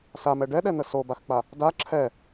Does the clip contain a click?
yes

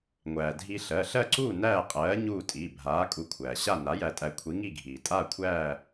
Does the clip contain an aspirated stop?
yes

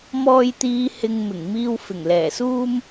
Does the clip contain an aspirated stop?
no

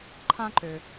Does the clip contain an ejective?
no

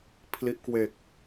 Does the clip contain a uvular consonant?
no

